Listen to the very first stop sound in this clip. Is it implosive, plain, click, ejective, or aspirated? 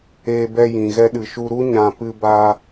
plain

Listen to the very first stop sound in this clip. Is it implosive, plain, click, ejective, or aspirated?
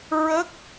plain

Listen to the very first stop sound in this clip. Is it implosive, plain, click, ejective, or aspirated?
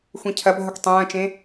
aspirated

